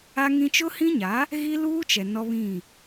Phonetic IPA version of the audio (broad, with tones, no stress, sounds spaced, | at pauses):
a˦ ŋ ĩ˦ t͡ʃ ʊ˦ h ĩ˦ ɲ a˨˦ | ɣ i˦ l uː˦ t͡ʃ ɛ˨ n ɔ˦ β ĩ˦˨